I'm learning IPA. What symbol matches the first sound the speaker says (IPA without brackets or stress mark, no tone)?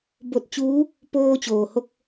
b